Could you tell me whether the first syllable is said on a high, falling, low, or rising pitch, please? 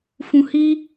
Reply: low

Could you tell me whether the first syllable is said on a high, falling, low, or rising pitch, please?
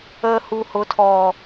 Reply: low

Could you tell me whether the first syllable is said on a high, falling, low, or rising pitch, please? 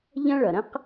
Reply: high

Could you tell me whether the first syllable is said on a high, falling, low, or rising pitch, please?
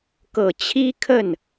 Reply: low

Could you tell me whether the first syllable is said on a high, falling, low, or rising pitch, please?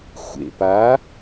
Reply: low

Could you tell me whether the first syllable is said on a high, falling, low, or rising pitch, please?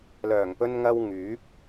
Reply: low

